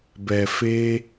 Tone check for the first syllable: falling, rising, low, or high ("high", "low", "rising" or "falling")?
low